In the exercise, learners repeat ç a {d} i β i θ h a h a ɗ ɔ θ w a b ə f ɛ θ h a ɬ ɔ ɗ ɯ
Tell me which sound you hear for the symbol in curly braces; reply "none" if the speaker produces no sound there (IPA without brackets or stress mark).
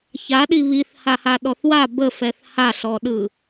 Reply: ɗ